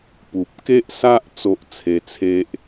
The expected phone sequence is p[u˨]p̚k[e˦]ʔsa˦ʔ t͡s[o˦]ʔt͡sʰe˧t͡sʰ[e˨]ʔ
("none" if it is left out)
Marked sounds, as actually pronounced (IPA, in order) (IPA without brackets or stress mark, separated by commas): u˨, e˦, o˦, e˦